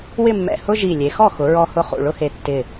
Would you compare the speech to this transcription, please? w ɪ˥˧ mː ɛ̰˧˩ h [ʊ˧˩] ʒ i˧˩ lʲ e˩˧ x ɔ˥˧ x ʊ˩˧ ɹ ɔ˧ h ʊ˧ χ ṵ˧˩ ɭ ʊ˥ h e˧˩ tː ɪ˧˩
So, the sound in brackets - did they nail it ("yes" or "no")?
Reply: no